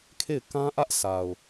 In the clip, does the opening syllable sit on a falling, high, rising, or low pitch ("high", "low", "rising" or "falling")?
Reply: falling